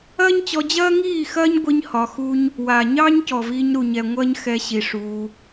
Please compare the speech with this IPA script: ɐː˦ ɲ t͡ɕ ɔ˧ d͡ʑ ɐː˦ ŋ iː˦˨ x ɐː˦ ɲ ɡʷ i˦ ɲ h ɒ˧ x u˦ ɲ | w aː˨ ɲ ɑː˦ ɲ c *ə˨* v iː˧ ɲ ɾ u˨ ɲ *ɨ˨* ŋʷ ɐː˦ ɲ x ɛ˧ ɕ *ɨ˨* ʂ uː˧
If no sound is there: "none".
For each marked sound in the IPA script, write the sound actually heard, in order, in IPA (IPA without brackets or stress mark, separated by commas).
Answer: ɔ˨, ɛ˨, i˨